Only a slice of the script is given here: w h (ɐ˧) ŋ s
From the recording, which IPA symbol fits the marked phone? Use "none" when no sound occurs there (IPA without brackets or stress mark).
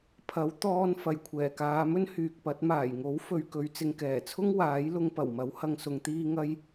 ɐ˧